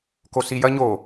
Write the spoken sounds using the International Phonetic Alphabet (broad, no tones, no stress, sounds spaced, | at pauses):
k o s i j ɐ ɲ o